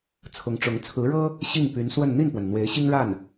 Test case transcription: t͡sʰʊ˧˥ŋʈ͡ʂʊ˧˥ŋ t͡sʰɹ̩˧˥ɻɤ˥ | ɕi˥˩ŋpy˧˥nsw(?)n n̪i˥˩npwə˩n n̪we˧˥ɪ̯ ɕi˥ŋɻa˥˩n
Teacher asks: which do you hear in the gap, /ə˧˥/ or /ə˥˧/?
ə˥˧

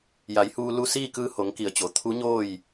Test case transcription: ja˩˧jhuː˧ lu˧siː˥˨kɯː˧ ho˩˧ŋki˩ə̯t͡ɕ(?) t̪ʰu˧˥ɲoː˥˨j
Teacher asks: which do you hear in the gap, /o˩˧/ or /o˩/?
o˩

